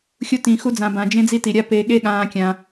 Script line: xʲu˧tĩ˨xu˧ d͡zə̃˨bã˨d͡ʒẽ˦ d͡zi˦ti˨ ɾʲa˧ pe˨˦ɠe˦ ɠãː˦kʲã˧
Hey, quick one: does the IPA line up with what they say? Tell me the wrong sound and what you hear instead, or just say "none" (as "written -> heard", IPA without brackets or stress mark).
ə̃˨ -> ã˨